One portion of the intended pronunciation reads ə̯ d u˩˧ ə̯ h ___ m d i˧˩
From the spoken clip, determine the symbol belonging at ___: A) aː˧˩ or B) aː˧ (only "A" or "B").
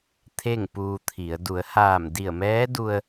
A